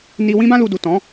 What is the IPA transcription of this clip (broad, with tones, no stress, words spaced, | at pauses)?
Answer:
ni˧ wĩ˦bã˦lu˧ du˨tɔ̃˨˦